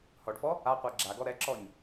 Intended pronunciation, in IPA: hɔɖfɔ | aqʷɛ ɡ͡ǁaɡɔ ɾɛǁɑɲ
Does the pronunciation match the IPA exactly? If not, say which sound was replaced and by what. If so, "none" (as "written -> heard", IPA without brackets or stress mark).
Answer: ɑ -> ɔ